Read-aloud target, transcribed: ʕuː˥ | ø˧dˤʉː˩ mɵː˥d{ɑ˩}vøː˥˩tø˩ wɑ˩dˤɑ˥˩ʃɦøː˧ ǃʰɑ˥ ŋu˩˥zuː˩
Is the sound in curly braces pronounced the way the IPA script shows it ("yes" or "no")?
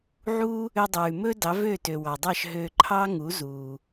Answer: no